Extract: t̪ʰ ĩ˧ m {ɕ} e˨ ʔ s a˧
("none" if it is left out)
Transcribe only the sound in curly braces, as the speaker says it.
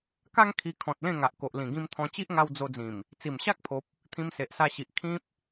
s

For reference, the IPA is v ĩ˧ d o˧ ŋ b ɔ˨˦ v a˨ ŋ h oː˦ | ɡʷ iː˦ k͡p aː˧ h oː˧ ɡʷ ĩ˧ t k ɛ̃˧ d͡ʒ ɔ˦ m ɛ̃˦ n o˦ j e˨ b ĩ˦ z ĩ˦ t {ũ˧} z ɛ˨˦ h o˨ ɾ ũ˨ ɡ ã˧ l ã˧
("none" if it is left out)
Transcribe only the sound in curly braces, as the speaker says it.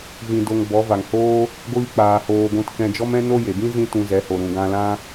ũ˧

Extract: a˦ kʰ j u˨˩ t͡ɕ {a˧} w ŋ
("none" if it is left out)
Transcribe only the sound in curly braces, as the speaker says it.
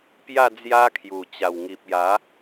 a˨˩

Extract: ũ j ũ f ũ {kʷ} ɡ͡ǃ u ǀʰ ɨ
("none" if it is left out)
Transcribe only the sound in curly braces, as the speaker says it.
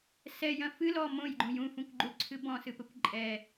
kʷ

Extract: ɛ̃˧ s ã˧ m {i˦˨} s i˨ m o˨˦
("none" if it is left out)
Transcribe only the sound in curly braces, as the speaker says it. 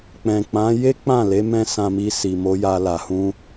i˧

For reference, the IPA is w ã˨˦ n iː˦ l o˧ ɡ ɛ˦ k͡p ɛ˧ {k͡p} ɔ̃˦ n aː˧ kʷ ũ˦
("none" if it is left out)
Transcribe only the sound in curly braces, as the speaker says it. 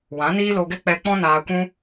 k͡p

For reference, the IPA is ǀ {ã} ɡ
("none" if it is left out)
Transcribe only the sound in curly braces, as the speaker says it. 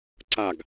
a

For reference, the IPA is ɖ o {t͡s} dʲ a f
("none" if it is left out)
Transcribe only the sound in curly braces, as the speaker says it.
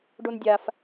n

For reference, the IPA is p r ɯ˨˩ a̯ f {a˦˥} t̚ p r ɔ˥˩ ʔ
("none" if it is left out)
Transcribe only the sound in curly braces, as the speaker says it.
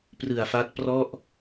a˦˥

